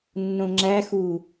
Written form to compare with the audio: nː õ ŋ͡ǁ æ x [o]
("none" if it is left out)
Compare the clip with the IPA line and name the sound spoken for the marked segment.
u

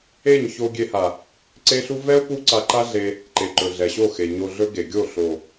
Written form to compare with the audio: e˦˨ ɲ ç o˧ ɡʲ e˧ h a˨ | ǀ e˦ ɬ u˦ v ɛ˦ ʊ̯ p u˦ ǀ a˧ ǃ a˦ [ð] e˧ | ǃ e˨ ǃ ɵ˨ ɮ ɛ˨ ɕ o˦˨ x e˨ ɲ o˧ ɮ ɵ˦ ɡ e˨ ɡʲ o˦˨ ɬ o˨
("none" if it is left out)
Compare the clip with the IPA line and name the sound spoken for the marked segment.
ɮ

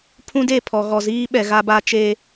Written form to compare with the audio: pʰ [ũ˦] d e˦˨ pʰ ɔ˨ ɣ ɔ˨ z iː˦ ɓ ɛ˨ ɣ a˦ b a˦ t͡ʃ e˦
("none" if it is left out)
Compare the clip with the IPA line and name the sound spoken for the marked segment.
ũ˦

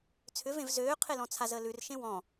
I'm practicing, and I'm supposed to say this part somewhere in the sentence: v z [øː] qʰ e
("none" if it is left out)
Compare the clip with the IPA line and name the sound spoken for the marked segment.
øː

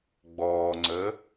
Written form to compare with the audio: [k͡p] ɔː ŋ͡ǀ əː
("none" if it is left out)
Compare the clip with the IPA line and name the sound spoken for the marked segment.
ɡ͡b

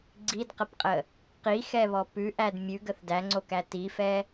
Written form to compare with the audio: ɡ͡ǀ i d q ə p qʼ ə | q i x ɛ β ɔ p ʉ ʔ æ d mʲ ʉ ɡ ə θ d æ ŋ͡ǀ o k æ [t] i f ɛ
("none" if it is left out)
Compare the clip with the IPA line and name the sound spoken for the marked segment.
t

